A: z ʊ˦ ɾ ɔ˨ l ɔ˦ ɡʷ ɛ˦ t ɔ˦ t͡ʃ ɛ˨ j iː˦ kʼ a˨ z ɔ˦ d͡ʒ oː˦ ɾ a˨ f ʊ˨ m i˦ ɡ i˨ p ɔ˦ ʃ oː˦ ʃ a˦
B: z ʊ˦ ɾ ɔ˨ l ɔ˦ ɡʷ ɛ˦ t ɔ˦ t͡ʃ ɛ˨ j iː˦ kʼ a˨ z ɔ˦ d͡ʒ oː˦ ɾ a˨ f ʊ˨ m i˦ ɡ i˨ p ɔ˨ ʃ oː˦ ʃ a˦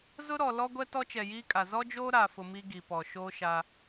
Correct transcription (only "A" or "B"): B